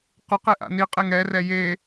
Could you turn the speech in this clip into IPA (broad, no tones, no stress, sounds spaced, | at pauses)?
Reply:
q ʊ q e ʔ a̰ n i qʼ e ŋ ɛ r ɛ j e